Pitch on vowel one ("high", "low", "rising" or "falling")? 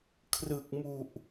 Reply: low